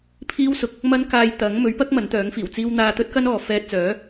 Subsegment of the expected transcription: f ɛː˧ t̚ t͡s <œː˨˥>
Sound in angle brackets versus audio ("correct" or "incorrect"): correct